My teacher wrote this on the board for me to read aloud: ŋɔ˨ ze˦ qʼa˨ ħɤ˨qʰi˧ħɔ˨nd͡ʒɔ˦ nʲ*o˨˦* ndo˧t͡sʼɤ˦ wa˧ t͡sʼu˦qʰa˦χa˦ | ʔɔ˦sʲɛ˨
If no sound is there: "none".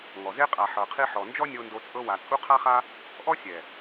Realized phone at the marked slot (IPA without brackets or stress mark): o˧